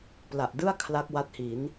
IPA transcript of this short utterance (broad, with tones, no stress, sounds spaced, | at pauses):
p l a˨˩ ʔ d ɯ˥˩ a̯ kʰ l a˦˥ k̚ w a˦˥ t̚ h i˩˦ n